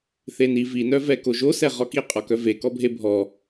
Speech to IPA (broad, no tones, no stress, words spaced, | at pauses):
θeni vinœvɛ koʒosɛ ʁɔkiqʼɔkœ vekɔbʱe bʱɔ